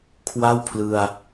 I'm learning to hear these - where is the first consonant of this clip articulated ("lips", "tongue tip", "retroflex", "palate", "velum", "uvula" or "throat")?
velum